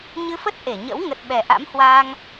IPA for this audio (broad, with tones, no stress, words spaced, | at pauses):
ɲɨ˧fə˦˥t̚ ʔe˧˩ɲə̰˧˥w ŋə˨˩t̚ ɓɛ˨˩ʔa̰˧˥mhwaː˧ŋ